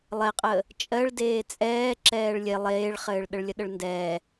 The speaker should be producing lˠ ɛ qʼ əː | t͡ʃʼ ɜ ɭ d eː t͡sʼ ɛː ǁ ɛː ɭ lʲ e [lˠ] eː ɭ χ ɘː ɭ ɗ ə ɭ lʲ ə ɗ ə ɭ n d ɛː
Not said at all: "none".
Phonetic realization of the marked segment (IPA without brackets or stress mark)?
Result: lˠ